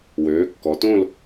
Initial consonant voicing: voiced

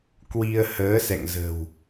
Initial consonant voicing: voiceless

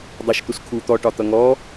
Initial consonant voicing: voiced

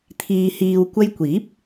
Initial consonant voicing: voiceless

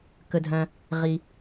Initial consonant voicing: voiceless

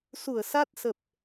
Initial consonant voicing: voiceless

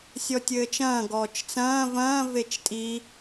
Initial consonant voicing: voiceless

